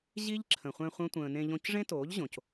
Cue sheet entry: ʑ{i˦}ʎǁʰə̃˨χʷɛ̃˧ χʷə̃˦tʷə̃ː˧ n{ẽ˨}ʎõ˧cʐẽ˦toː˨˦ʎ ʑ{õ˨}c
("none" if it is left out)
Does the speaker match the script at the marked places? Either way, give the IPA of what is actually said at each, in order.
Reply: i˦, ẽ˧, õ˨

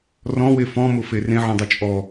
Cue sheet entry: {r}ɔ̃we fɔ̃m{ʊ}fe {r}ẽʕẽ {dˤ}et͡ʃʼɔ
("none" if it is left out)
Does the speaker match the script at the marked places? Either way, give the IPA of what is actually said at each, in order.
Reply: r, ʊ, r, dˤ

